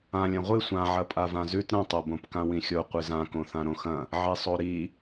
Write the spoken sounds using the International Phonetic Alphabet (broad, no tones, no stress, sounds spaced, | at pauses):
ã lʲ ɐ̃ ʁʷ ɨ sʷ ã ʕ ɐ pʼ a v ã z ʉ t ɾ ɐ̃ tˤ ɐ b õ p k ã w ĩ xʲ o qʷ ɨ z ã k õ θ ã ɾ õ x ɐ̃ | ʕ i sˤ o ɾ i